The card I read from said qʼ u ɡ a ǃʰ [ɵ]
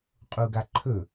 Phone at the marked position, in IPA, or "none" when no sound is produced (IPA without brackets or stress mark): ɵ